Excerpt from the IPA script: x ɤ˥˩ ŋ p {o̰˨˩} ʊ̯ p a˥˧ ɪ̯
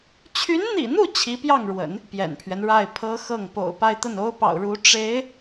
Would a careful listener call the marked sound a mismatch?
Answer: no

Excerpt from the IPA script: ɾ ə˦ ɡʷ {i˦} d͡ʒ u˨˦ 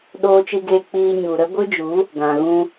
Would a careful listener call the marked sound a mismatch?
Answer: yes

